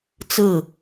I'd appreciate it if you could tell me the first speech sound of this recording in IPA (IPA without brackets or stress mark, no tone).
t͡s